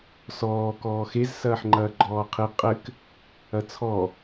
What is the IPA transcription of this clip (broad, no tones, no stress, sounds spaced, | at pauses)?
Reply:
s ɔː k ɔː x e z s ɐː ħ ŋ͡ǃ ɐː ɡ͡ǃ ɔː qʰ i qʼ ɘ k | ɐ t͡sʰ ɔ